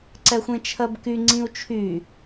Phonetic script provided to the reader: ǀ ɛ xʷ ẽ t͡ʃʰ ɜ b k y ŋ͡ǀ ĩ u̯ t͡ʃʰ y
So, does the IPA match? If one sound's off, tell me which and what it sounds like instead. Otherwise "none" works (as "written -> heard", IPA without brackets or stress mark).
none